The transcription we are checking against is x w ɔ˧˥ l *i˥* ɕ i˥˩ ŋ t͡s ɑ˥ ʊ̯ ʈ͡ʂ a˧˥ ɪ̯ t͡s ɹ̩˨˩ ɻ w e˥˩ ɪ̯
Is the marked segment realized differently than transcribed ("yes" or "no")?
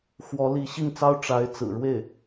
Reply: yes